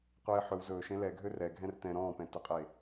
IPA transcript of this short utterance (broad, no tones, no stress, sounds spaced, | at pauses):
qʷ eː ħ ɵ w z ɵː ʃ ẽ l ɛ ɡʱ ø r ɛ ɡʱ ɛ̃ r t ɛ̃ ɾ ɔ̃ː p ɛ̃ t ɵ qʼ eː